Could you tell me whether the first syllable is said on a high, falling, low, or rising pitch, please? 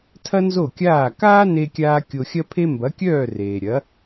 high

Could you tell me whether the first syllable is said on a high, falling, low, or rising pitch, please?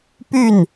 falling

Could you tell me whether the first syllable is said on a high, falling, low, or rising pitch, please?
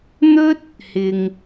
high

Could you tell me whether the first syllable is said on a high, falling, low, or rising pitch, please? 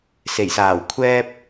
low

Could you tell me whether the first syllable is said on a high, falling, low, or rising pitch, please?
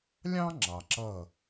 high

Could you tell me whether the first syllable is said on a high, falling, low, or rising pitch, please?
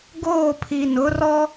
falling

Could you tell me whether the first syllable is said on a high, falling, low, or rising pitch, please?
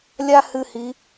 high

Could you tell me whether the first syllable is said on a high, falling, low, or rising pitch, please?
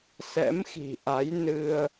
rising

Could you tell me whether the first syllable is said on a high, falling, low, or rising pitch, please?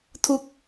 falling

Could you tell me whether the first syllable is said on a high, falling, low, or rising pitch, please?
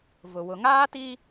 low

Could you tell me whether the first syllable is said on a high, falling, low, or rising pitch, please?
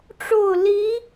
falling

